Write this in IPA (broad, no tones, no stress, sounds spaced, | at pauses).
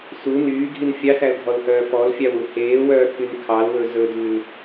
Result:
s u n yː ɡʱ i n fʲ ɑ s æ l dʱ ɔ l h œː f ɔ l fʲ ɑ w u h eː w œː kʰ y n kʰ ɑ l w ɵ z ɵ d ʉ l